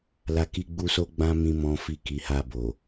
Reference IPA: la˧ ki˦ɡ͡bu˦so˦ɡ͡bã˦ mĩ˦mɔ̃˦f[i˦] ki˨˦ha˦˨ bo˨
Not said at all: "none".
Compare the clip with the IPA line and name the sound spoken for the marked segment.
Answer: i˦˨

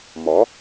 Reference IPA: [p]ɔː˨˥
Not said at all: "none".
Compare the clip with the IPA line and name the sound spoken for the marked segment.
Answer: m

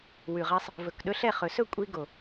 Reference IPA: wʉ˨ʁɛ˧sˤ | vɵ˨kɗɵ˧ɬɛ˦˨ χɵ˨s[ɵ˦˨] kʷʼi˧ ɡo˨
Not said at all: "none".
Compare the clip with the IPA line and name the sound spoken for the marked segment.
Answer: ɵ˦˨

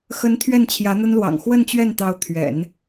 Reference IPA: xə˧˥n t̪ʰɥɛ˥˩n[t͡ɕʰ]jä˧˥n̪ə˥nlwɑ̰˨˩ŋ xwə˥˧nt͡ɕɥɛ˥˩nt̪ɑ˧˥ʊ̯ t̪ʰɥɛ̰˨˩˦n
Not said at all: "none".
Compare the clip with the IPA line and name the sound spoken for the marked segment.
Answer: t͡ɕʰ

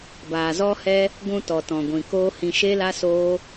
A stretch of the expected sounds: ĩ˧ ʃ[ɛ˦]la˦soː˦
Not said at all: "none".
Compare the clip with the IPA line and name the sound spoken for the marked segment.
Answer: e˦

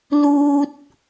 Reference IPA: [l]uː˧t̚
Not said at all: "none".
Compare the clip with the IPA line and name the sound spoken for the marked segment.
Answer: l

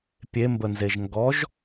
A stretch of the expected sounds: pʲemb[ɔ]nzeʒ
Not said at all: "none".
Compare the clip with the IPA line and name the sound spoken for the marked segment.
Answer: ə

